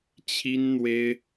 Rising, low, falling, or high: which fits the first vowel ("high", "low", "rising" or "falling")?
high